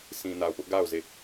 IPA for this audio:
sʰĩ˨na˨ʊ̯pʊ˦ʔ ɡa˦˨ʊ̯ ze˦˨

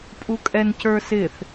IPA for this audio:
pʼukʼɛncə˞sɪθ

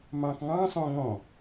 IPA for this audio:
mɑ̃kŋɑ̃ sˤõŋɔ̃

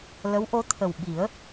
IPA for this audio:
lə˧˥wʔo˧˥t̪ʰə˨˩wɓi˨˩˦ə̯

